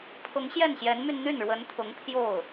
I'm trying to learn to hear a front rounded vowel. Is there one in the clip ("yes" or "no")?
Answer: yes